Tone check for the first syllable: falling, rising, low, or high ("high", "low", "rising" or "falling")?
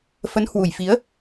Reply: rising